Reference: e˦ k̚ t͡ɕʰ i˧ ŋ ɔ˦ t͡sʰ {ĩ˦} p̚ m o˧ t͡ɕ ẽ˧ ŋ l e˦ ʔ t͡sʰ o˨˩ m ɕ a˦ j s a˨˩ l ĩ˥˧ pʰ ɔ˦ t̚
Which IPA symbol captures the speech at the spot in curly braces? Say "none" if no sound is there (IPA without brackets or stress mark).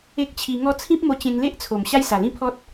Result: ĩ˦